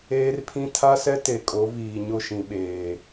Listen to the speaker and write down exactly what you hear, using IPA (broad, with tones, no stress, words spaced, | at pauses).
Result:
eː˦rpʰĩ˦ tʰa˦sɛ˦ te˨kʼo˨˦viː˨ ɲʊ˦˨ʃĩ˨ɓeː˨